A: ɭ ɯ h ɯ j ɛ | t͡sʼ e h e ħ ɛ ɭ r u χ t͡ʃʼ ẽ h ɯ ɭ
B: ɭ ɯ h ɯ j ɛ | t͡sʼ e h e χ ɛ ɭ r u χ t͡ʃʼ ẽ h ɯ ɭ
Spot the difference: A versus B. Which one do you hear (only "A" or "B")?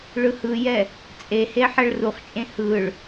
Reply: A